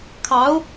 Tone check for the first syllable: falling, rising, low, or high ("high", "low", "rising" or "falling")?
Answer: rising